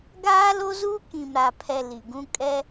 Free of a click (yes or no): yes